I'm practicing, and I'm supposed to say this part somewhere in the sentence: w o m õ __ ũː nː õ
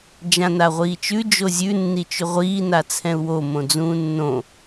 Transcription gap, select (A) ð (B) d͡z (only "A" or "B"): B